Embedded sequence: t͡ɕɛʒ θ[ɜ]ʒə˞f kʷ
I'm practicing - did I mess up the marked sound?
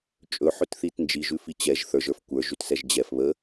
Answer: yes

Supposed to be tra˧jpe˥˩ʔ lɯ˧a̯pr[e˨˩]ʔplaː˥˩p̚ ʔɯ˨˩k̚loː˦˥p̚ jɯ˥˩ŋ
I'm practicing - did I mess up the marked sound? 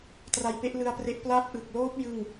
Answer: yes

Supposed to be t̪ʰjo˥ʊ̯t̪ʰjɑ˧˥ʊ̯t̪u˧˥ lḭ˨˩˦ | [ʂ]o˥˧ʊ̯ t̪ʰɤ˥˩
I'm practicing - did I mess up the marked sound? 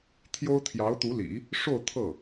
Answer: no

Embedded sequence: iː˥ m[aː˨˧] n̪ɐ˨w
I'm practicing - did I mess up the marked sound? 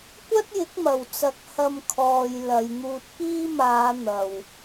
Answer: no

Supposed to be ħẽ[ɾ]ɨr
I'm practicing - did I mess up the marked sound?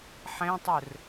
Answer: yes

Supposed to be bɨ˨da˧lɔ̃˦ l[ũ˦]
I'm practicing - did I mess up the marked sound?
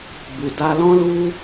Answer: yes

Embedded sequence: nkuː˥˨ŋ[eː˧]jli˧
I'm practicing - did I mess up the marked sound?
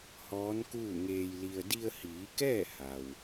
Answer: no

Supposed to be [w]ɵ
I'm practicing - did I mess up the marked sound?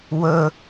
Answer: no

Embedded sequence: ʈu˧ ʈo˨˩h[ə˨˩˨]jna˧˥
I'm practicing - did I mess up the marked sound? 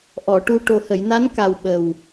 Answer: no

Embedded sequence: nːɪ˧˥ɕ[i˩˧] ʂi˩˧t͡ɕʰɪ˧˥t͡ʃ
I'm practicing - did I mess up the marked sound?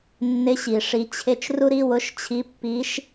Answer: yes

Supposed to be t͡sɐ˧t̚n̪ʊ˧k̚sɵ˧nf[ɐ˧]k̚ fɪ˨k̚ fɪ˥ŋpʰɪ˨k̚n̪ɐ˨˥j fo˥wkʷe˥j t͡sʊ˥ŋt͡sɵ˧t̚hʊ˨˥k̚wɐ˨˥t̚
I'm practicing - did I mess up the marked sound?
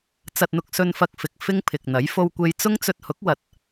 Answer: no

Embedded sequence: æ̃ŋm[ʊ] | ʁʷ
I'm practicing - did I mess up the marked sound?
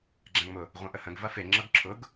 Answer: no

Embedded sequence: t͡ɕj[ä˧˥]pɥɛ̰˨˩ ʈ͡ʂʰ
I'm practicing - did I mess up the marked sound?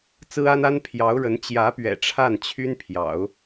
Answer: no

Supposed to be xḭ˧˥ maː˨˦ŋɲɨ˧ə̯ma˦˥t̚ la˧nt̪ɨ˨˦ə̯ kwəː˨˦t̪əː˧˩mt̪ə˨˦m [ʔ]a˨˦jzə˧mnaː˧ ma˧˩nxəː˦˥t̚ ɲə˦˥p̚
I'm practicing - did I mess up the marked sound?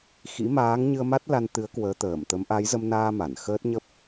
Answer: no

